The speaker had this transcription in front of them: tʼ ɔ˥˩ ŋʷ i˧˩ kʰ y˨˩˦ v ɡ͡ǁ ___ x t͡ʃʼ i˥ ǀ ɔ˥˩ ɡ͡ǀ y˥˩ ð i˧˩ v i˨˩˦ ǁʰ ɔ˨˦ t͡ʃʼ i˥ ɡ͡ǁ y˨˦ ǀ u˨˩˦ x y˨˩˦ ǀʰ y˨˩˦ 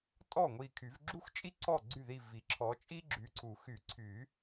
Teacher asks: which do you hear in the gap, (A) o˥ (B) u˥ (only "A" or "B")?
B